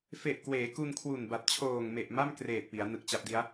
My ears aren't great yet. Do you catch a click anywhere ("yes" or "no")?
no